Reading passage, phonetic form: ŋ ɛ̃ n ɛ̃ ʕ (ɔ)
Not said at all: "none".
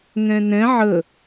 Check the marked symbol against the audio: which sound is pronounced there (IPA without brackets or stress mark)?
ə